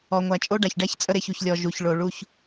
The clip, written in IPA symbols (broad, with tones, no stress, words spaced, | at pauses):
ɔ˨ŋʷæ˨t͡ʃʼo˦ ɖa˨çɖæ˦ç t͡sʼə˦ ɾe˦˨çu˨çlʲɔ˨ ʒu˨ç ɭo˨ɭu˦ç